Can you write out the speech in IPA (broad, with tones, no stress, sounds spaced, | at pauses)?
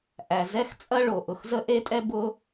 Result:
ʔ æ˩ z ɛ˥ x t͡sʼ ɐ˥ ɭ o˩ ʔ ʊ˩ x z ə˥ ʔ e˥ tʼ ɛ˥ b ʊ˥